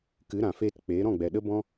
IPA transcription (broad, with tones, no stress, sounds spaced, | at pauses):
k ɨ˨˦ ɾ ã˨ f eː˧ t k͡p eː˨˦ ɾ ɔ̃˦˨ ɡ͡b ɛ˨ ɗ ə˦ b ɔ̃˦